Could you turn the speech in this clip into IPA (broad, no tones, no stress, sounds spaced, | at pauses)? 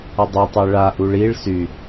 ə dˤ e tˤ ɛ ɭ a ʔ u ɭ i ɭ s y